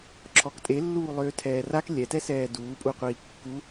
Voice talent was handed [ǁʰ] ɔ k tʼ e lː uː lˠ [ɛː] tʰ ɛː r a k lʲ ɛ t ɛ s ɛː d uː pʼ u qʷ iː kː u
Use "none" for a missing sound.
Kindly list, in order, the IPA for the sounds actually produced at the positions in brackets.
ǁʰ, øː

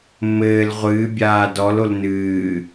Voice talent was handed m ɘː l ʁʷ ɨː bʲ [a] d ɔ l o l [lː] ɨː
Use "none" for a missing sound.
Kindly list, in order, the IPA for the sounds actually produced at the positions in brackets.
aː, n

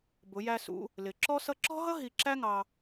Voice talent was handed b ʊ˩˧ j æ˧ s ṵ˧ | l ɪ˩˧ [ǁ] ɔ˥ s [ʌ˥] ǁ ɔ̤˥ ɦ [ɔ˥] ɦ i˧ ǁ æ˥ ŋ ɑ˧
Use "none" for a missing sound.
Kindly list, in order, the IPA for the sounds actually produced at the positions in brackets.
ǁ, ʌ˥, ʌ˥

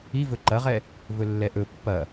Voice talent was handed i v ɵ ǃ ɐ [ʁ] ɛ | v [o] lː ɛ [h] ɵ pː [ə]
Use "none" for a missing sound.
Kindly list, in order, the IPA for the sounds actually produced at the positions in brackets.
ʁ, ɵ, ʔ, ɐ

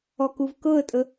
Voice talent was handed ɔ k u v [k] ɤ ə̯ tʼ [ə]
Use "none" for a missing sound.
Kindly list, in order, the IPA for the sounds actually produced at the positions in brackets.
k, ə

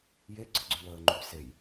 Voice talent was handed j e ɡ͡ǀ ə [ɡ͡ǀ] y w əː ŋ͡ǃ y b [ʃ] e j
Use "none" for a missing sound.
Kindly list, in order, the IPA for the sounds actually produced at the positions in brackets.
ɡ͡ǀ, s

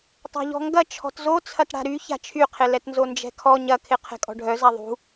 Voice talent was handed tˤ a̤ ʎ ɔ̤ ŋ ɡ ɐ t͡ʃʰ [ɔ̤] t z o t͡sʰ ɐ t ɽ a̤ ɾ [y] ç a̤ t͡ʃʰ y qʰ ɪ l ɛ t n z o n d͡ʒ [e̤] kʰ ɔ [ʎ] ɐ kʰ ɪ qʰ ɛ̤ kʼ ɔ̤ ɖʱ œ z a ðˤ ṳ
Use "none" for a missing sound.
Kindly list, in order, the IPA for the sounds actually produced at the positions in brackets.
ɔ̤, y, ɛ̤, ɲ

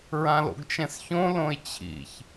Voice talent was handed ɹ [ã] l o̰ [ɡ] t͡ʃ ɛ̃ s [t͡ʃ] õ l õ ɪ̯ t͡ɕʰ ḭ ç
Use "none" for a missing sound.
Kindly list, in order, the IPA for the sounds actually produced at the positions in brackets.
ã, ɡ, ç

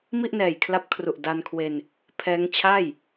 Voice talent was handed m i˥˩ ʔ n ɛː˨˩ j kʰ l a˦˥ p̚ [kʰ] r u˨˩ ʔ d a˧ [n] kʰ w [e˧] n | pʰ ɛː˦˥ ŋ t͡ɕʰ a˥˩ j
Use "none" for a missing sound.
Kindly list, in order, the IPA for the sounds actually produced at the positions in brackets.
kʰ, n, e˧

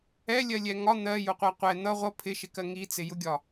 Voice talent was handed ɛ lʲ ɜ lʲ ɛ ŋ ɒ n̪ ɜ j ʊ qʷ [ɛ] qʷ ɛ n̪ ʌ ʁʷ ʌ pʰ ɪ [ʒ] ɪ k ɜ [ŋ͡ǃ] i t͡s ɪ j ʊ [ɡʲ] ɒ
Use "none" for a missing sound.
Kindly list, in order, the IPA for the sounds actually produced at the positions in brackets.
ɜ, ʃ, ŋ, ɡʲ

